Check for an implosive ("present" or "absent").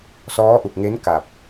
absent